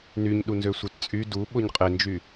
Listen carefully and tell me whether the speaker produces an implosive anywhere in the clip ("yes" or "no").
yes